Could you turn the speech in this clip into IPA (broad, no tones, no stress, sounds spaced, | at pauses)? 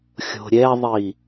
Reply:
xʲ o̤ ɾʲ ɛ ðˤ i